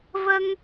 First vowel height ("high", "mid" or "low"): mid